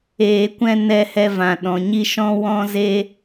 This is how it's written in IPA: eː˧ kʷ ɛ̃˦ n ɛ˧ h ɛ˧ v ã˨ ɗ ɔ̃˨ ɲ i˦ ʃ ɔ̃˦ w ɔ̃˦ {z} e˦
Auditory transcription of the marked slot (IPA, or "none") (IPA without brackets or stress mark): z